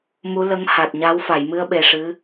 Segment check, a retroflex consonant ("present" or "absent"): present